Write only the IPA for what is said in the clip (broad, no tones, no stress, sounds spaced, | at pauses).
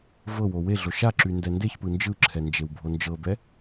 v ɤ w o w e ɮ o ʃ a ǁ y n d ɛ n d e ç p ɯ n d͡ʒ ɯ ǁʰ ɛ n d͡ʒ e w bʱ o n d͡ʒ ɤ b ɛ